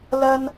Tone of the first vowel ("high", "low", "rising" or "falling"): high